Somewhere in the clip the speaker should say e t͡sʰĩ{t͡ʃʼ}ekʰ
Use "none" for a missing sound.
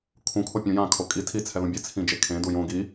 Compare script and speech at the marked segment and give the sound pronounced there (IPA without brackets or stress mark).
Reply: d͡ʒ